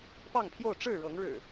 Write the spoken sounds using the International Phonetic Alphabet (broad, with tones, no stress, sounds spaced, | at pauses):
p ɑ˥˨ ŋ pʰ j o˥˨ ʊ̯ ʈ͡ʂ ɻ̩˥˨ ɻ ɤ˨˦ ŋ ɻ ɻ̩˨˩